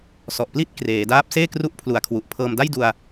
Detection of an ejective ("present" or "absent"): absent